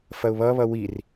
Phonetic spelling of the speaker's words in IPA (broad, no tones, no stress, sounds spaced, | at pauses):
f ɐ ʊ̯ β ʌ β ʌ w i r